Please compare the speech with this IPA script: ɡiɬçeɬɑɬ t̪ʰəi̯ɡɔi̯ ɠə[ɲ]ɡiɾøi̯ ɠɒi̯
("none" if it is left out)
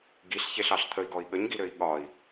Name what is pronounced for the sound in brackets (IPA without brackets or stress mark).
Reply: ɲ